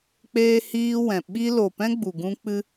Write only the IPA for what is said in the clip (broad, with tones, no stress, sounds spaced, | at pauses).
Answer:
k͡p eː˧ h iː˧ w ɛ̃˨ ɓ i˦ l o˨ p ɛ̃˦ ɡ͡b u˨ ɡ ũ˦ k͡p ɨ˦